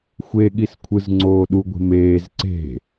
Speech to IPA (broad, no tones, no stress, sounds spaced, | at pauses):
xʷ e ɠ i s kʷʰ ɯ z ŋ͡ǀ oː ɗ u ɡʷ e̤ m eː z ǀ e̤